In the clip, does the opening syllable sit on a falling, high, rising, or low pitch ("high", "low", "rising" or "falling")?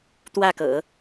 falling